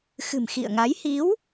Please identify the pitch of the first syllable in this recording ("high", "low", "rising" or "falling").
low